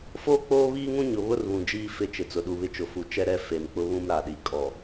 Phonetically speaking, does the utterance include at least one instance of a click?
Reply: no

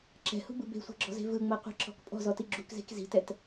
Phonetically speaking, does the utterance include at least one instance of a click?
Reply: yes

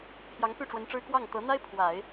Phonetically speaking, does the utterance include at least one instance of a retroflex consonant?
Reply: yes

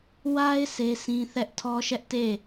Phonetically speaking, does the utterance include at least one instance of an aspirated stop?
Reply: yes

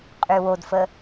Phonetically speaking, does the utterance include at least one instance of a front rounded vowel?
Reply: yes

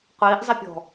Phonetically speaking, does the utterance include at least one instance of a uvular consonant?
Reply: yes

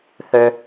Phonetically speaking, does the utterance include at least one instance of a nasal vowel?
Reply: no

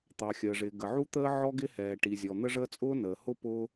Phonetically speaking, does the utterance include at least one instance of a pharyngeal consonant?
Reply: yes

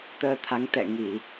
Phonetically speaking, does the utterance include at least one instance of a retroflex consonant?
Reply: no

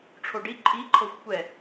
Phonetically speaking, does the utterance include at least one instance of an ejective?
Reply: yes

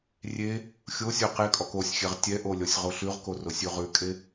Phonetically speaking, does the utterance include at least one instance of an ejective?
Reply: yes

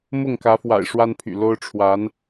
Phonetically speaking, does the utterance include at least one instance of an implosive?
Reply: no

